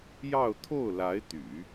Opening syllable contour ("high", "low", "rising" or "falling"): falling